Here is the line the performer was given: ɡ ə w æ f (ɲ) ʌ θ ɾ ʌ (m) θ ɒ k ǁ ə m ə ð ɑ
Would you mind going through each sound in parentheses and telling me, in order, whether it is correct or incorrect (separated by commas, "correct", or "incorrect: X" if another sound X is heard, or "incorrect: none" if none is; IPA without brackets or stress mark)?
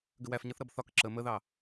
correct, incorrect: b